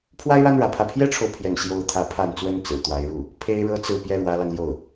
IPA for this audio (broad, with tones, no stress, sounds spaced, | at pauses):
pʰ w a˥ ɪ̯ ɻ a˥ n ɻ ä˧˥ pʰ ä˥˩ pʰ j ɛ˥ ʈ͡ʂʰ o˨ ʊ̯ pʰ j ɛ˥˩ n ɕ j o˥ ʊ̯ t̪ʰ ä˧˥ pʰ a˥˩ n t͡s w ə˥ n t͡s ɹ̩˨˩ t̪ w a˧˥ ɪ̯ ɻ u˥˩ | pʰ e˥ ɪ̯ ɻ ɤ˥ t͡s ɹ̩˥˩ p j ɛ˥ ɻ w ä˧˥ l ɑ˧ ŋ l j o˥˩ ʊ̯